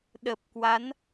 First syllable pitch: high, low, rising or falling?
low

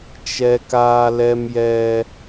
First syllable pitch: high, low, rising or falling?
high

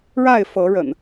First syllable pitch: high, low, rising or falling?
falling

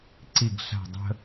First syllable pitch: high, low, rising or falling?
falling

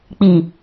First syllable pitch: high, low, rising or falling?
low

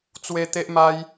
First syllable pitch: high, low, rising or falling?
high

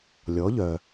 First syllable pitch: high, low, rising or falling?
rising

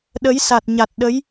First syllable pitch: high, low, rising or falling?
rising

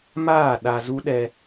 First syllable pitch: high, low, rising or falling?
falling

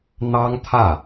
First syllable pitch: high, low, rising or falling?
high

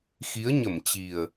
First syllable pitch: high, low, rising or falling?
rising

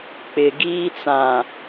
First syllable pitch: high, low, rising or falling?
low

